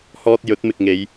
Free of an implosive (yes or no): yes